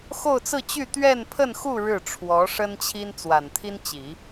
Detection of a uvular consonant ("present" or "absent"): absent